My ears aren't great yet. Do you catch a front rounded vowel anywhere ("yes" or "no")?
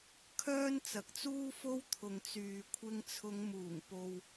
yes